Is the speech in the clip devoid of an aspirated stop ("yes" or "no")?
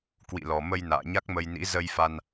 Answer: yes